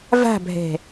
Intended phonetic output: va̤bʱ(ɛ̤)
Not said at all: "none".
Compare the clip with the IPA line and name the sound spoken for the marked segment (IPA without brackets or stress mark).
ɛ̤